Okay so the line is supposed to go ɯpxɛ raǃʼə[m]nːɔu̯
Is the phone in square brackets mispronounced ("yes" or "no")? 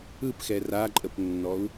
yes